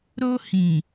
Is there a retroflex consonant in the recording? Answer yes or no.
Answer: no